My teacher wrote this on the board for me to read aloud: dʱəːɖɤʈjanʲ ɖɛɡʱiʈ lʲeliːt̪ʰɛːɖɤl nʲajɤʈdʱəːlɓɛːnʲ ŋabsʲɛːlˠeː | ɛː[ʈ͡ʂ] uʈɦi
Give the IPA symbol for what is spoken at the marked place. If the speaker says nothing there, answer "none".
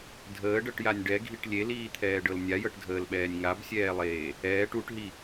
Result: ʈ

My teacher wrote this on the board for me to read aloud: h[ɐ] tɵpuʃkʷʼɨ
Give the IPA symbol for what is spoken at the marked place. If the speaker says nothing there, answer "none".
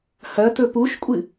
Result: ɐ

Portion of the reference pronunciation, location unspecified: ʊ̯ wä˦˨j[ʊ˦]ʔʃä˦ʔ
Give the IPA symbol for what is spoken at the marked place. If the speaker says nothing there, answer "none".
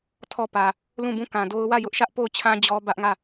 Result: ʊ˦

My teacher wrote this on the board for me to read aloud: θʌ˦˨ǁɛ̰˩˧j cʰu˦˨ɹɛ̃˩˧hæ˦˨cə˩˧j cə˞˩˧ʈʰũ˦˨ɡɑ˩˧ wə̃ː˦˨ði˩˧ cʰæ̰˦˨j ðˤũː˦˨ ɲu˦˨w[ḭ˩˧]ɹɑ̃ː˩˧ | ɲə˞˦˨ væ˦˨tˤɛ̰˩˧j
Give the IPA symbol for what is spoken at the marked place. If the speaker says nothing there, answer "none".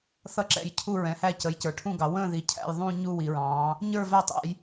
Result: i˩˧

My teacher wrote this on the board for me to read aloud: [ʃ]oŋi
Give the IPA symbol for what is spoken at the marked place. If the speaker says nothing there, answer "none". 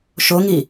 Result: ʃ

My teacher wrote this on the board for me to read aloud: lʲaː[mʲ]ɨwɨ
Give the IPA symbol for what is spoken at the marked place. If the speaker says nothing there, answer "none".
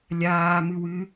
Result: m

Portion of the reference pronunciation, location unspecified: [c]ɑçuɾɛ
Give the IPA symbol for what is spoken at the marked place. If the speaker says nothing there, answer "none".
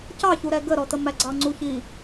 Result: c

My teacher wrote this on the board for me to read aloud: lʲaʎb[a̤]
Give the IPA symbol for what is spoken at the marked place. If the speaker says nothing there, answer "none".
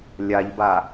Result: a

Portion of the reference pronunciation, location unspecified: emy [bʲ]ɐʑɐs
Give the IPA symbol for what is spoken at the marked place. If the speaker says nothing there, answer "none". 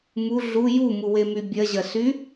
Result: bʲ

